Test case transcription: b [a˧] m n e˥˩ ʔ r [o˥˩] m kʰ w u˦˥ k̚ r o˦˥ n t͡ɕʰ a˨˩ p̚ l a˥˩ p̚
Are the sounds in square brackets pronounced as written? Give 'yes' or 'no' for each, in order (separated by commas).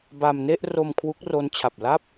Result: yes, no